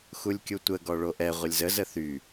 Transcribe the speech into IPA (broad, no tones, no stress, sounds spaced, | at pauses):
x u lʲ kʲ u tʷ ə ɡ ɔ ɭ o ʔ ɛ ʁʷ ə lʲ z ə z ə θ y